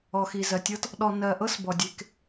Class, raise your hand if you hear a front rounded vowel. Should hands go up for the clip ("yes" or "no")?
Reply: no